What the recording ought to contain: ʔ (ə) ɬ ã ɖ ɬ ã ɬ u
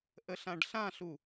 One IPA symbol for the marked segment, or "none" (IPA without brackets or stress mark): ə